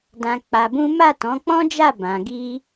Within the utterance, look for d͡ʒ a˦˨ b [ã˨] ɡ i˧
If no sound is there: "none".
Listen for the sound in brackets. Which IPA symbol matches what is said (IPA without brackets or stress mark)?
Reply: ã˨